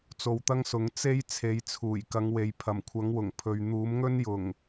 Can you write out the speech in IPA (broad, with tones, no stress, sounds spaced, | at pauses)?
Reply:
t͡s o˧ w t̪ ɐ˥ ŋ s ʊ˨˥ ŋ t͡s e˥ j t͡sʰ e˨˧ j t͡sʰ uː˨˩ j k ɐ˨˧ ŋ w e˨ j pʰ ɐ˨˩ m kʷʰ ɐ˨˥ ŋ w ʊ˨˩ ŋ pʰ ɵ˨ ɥ n̪ uː˨˥ m ŋ ɵ˥ n j ʊ˨˩ ŋ